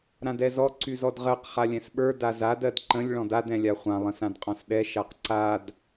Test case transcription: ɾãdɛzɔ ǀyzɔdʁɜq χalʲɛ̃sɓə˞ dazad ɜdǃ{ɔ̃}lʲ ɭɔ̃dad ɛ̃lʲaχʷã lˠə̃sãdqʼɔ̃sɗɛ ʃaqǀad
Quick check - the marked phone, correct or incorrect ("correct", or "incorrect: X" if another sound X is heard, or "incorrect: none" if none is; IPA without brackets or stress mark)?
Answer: incorrect: ə̃